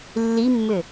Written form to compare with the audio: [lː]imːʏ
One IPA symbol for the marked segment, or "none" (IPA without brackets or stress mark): lː